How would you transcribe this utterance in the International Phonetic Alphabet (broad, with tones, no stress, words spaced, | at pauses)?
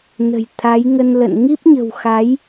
nə̤˨˩j t̪ʰa˨˦j ŋə˧nlə̰˧˨n ŋi˦˥p̚ɲə̤˨˩w xa˨˦j